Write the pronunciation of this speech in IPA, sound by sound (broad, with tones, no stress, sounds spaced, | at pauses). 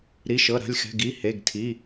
ɾ i˩˧˩ ʃ ɤ˩˧˩ ɾ a̤˩˧˩ lʲ x ɛ̤˩˧˩ ɡ i˩˧˩ h e˩˧˩ ɡ tʰ i˩˧˩